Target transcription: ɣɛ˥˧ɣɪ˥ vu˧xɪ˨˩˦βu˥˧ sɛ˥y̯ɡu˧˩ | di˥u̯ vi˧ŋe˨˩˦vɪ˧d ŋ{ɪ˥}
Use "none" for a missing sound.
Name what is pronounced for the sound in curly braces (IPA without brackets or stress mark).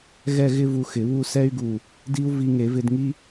i˥